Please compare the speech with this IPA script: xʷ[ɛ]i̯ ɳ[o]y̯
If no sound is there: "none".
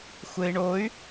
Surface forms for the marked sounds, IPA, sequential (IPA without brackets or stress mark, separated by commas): ɘ, o